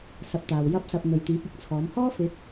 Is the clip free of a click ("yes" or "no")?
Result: yes